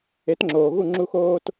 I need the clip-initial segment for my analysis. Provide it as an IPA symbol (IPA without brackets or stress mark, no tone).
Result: e